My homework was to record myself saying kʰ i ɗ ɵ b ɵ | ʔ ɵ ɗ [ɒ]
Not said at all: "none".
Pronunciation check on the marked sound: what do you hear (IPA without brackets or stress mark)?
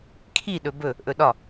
ɒ